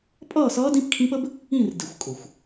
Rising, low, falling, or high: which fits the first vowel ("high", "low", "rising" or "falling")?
falling